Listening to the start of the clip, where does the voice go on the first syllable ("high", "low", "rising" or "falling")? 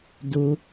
low